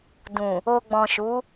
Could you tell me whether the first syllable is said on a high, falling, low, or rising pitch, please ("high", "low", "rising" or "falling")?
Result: low